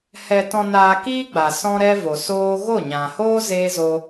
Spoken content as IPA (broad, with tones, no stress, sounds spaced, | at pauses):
h ɛ˧ t ɔ̃˧ n aː˧ k iː˦ ɡ͡b a˨ s ɔ̃˦ ɾ ɛ˦ v o˨ s oː˦ ɣ o˦˨ ɲ ã˨ h oː˦ z eː˦ z o˦